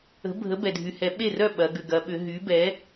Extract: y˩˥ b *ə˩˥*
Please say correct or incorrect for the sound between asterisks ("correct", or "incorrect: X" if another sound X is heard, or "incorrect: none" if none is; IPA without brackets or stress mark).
incorrect: ɛ˩˥